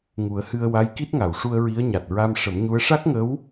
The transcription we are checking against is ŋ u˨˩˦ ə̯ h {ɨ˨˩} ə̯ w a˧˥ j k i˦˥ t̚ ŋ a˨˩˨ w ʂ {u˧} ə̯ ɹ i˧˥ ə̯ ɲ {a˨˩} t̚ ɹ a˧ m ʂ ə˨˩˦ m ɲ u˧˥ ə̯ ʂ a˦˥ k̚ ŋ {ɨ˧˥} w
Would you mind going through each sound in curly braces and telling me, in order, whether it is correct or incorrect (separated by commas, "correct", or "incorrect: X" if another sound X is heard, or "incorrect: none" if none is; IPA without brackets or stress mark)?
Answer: incorrect: ɨ˧, correct, correct, incorrect: ə˧˥